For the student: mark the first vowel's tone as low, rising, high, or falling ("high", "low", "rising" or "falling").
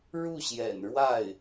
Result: falling